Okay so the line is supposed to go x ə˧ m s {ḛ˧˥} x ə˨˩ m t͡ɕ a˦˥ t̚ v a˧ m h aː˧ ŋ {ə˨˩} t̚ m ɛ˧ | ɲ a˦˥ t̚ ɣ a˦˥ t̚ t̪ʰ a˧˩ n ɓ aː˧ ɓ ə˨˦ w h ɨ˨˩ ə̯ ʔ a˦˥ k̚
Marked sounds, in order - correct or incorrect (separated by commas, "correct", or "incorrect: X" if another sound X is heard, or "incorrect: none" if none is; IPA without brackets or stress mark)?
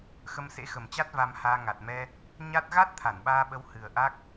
correct, incorrect: a˨˩